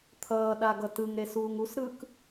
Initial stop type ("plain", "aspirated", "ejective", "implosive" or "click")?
aspirated